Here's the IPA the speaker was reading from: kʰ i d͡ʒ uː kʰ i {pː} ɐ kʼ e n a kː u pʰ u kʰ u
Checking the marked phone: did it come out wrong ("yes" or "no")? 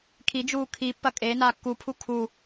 no